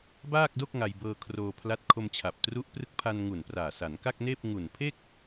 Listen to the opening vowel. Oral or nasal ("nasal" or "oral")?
oral